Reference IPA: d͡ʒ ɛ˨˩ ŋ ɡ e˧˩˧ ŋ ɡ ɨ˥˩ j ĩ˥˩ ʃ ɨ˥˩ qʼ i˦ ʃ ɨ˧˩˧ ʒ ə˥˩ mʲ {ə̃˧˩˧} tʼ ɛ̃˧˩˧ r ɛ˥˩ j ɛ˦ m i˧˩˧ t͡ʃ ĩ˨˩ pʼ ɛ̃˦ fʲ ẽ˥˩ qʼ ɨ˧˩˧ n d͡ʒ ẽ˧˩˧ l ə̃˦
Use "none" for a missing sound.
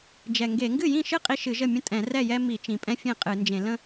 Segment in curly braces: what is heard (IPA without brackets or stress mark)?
ə̃˦